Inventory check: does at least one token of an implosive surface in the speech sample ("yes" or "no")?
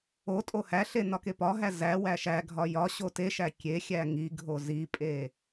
no